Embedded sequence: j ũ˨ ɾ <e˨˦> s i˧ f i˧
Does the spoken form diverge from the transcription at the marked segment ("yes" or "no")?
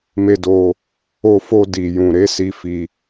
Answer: no